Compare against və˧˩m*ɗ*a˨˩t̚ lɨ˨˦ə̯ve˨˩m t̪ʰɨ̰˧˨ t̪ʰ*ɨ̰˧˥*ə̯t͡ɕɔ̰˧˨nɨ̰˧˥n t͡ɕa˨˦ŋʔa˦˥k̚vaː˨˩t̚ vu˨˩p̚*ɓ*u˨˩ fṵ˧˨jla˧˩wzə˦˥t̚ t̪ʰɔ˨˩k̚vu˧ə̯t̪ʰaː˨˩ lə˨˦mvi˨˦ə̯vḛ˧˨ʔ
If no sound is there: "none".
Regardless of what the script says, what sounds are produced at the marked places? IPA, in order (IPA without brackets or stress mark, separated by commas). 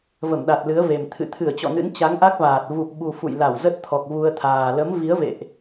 ɗ, ɨ˧˩, ɓ